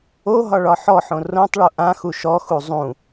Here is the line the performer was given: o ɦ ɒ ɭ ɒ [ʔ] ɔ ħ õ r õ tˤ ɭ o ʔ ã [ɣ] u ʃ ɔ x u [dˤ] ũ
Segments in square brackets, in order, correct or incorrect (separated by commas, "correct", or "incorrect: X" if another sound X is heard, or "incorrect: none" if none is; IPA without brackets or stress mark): incorrect: ħ, incorrect: x, incorrect: zˤ